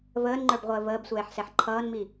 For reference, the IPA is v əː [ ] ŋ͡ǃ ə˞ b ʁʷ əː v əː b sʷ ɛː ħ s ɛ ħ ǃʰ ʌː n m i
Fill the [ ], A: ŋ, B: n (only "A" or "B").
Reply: B